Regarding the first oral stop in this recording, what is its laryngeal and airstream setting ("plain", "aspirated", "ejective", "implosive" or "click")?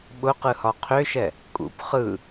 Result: implosive